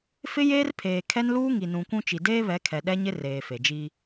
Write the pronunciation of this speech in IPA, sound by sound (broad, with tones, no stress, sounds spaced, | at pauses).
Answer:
f ɪ˦ j eː˦ r pʰ eː˨ kʰ ɛ˦ n l uː˦ ŋ i˨ n ũ˨ kʷ ũ˦ t͡ʃ i˨ d eː˦ β ɛ˨˦ kʰ ɛ˨ ɗ ɛ˦ ɲ ɪ˦ r eː˨ f e˨ d͡ʒ i˦